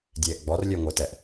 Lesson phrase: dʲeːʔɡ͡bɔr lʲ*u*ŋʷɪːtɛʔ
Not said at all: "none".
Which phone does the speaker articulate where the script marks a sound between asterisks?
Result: ø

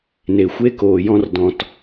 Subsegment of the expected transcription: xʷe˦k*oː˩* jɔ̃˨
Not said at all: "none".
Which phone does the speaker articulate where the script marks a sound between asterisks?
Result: oː˩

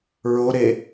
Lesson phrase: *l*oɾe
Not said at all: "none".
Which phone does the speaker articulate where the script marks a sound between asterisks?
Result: ɹ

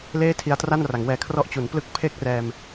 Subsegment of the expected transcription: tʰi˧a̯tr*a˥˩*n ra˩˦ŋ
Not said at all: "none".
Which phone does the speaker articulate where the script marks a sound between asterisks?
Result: a˥˩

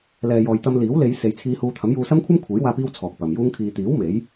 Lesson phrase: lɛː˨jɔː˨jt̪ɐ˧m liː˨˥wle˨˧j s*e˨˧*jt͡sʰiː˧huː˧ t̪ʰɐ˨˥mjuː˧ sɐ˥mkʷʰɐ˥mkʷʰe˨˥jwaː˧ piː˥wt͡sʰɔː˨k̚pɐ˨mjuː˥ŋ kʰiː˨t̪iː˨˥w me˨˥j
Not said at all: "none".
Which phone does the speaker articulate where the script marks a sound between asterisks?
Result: e˨˧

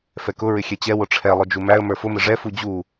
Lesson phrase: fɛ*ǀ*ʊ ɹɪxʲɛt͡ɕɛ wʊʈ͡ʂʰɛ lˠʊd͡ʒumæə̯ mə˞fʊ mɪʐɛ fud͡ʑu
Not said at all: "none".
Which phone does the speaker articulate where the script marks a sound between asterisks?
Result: k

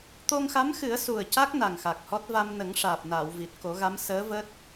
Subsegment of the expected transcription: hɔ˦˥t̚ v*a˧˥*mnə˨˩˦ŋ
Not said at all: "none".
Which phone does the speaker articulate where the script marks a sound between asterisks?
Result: a˧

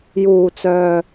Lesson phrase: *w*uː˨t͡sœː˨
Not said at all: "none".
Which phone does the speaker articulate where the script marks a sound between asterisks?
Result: j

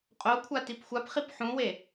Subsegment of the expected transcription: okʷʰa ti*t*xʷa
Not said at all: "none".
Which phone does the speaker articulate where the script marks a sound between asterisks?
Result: p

